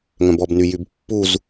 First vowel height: mid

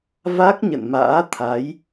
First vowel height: low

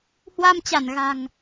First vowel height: low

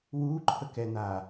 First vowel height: high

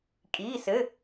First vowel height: high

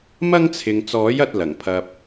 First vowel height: low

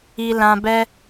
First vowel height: high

